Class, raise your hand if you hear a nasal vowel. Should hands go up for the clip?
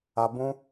yes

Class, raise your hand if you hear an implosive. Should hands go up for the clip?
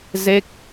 no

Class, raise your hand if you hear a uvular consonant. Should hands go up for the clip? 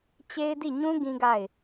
no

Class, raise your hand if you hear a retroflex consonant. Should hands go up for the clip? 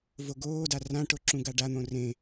yes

